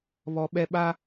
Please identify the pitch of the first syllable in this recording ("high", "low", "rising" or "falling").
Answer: low